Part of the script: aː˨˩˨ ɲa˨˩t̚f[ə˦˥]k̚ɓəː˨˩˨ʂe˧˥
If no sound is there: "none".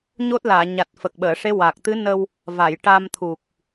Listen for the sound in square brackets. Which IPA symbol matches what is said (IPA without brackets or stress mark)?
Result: ə˨˩